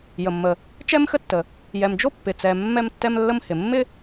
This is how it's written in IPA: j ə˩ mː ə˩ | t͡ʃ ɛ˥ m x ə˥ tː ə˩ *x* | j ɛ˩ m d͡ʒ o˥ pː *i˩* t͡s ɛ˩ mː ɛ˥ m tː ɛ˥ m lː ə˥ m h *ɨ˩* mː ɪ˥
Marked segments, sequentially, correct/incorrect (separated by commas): incorrect, incorrect, incorrect